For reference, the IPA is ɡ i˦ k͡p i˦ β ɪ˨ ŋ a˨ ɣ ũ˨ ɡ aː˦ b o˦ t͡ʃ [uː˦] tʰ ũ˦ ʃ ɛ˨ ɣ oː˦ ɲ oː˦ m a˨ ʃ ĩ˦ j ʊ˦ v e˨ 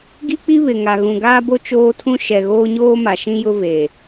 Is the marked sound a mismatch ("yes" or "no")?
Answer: yes